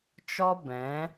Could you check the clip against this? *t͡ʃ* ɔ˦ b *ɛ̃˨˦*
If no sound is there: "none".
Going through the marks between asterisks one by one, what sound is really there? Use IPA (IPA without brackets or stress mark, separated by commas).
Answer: t͡ʃ, ɛ̃˨˦